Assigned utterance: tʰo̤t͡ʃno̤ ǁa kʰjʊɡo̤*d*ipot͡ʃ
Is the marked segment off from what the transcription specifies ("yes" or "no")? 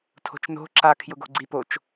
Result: yes